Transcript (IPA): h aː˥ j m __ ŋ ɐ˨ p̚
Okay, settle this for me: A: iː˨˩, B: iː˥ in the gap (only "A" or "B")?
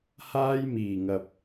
A